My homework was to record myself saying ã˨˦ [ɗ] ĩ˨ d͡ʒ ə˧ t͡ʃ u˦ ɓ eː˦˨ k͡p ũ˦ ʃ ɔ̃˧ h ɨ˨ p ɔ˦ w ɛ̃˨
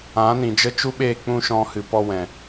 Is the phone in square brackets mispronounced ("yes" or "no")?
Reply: yes